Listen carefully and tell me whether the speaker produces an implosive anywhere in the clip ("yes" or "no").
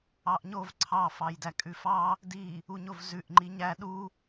yes